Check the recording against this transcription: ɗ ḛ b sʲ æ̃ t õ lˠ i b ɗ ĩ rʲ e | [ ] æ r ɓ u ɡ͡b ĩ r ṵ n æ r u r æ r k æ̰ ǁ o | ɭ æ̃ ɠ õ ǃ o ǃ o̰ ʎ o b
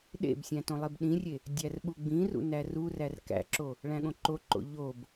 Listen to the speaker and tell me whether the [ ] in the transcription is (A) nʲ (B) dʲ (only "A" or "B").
B